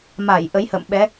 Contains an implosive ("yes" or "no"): yes